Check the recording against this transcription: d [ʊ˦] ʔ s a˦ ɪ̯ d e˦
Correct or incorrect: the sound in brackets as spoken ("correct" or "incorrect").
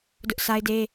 correct